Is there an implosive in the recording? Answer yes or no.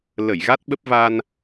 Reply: yes